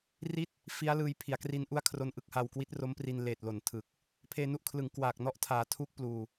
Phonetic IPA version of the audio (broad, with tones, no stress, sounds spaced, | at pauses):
r i˥˩ t̚ | f i˦˥ a̯ l ɯː˧ j pʰ i˩˦ a̯ k r i˦˥ n ʔ u˥˩ a̯ kʰ r o˦˥ n ʔ ɯ˦˥ k̚ h a˧ w k w i˦˥ t̚ r o˦˥ m p r i˧ n l eː˨˩ t̚ l o˩˦ n tʰ ɯ˨˩ k̚ | pʰ eː˧ n u˦˥ ʔ kʰ l ɯ˩˦ ŋ k w aː˨˩ k̚ n ɔ˦˥ ʔ tʰ aː˩˦ tʰ uː˦˥ k̚ p l uː˨˩